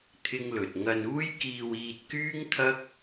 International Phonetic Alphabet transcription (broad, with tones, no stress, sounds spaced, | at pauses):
t̪ʰ ɪ˥ ŋ l ɵ˨ t̚ ŋ ɐ˧ n uː˥ j k iː˧ w iː˧ t̚ k yː˥ ŋ t̪ʰ ɐ˥ k̚